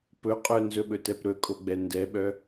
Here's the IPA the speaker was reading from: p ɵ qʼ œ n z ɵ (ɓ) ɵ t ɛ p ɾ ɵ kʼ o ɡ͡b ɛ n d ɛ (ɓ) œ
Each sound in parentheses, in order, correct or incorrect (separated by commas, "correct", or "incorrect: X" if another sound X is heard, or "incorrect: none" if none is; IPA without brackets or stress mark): correct, correct